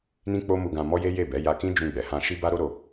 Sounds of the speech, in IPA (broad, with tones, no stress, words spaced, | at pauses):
nĩ˦k͡po˦ mu˧ɡã˧ mɔ˦je˦ je˦˨bɛ˨˦ ja˧kĩ˦ d͡ʒũ˧ɡ͡bɛ˨hã˧ ʃi˦ba˦ɾo˦ɾo˧